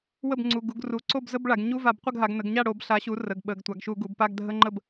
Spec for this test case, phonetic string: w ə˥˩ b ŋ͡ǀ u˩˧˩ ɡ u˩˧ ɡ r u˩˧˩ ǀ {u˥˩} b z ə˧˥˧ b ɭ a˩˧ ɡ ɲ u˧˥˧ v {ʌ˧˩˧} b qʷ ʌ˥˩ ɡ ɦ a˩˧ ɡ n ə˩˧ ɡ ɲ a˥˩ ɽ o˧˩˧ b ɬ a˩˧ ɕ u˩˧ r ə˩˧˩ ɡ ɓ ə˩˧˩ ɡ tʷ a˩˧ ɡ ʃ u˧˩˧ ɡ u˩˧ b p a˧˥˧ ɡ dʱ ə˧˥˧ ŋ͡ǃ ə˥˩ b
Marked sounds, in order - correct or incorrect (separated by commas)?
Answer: incorrect, incorrect